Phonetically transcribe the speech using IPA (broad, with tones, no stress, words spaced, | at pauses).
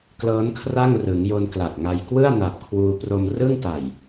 klɤː˦˥nkʰra˥˩ŋrɯ˩˦ŋjo˧n kla˨˩k̚ŋa˧j kwɯ˥˩a̯ na˨˩p̚kʰwuː˧ pro˧mrɯ˥˩ŋ ta˨˩j